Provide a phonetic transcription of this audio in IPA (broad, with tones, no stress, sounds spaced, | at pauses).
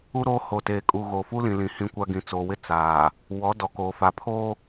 u˦ ɾ oː˦ h oː˨ t eː˨ kʼ u˨ ɣ o˨ f u˦ l ĩ˨ l ĩ˨ h ĩ˦ kʷ a˦ ɡ ĩ˨ t͡s o˨ w ɪ˦ t͡s aː˨ | w ɔ˨˦ d ɔ˨ k oː˨ f a˨ pʰ o˦